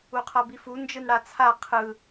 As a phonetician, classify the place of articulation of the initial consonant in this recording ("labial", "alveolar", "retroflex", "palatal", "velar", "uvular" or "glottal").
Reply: uvular